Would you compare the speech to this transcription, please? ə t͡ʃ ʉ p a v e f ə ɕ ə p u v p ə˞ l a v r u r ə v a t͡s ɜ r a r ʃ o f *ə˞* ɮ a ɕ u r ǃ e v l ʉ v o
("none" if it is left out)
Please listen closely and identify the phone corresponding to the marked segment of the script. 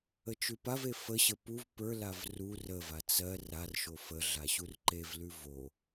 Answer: ə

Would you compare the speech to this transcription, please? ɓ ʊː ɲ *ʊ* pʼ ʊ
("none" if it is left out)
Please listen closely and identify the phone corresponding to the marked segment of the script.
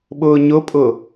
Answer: ʊ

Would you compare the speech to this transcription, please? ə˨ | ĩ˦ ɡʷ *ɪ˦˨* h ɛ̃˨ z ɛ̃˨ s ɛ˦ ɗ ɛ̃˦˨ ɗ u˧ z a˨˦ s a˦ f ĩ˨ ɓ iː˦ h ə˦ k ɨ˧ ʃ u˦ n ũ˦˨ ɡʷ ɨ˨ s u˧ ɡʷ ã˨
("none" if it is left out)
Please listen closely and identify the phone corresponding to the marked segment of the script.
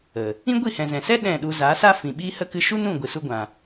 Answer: i˦˨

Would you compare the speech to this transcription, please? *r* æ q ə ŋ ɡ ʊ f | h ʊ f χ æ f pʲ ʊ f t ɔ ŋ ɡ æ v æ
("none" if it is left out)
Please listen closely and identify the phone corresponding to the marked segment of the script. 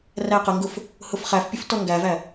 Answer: r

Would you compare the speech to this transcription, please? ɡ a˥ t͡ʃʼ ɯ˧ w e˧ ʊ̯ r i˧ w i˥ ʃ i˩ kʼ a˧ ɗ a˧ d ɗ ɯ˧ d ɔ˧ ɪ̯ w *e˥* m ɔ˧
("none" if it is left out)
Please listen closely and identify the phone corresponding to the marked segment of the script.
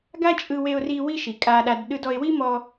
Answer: i˥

